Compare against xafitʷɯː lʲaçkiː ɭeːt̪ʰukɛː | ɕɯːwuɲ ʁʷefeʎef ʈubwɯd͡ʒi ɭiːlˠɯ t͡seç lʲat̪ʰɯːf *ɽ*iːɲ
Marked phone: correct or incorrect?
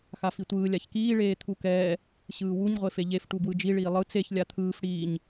correct